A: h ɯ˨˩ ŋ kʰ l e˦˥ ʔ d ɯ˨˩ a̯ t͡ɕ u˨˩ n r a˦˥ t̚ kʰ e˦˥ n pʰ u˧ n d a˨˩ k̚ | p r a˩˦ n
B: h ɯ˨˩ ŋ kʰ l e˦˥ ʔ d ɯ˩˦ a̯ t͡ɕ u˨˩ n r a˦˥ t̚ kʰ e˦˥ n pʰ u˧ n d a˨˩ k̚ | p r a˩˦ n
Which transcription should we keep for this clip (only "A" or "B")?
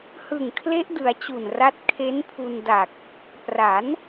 B